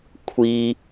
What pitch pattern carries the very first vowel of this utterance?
high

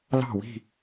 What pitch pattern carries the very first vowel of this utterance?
falling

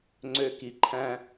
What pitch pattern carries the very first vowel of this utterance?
high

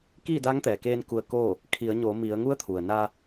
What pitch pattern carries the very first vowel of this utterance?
falling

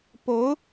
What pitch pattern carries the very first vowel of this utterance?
rising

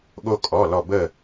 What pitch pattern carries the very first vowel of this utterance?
high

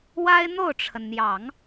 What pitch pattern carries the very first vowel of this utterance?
high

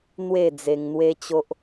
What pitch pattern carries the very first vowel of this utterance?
falling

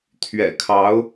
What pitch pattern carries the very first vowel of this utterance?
low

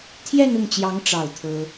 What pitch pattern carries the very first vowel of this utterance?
falling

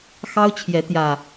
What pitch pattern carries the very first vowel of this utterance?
high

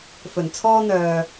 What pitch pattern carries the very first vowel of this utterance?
low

